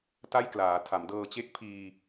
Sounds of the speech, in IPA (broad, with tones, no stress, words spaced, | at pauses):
ta˥˩jklaː˩˦tʰa˩˦m dɤː˨˩t͡ɕe˦˥k̚ pʰiː˧